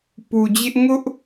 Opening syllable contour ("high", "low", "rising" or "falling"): low